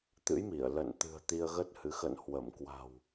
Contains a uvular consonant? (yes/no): no